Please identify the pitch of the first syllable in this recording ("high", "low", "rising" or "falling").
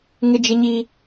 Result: high